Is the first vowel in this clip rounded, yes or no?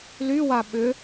yes